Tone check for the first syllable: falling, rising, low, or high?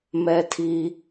low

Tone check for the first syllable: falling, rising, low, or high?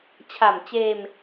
low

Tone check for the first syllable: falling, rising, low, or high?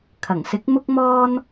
low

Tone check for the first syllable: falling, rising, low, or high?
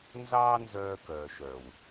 high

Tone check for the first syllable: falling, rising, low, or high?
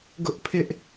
high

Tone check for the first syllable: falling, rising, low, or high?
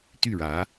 falling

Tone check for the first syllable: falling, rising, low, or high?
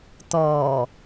low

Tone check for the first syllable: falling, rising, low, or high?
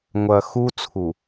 low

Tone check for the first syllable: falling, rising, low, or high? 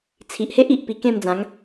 low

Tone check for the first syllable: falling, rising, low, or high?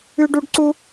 high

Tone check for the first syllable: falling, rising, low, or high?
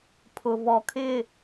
low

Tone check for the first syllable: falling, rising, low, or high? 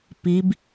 rising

